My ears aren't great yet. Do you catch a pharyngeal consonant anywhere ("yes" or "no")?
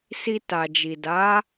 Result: no